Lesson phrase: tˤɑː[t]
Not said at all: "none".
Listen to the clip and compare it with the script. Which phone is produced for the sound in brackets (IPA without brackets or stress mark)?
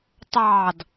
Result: d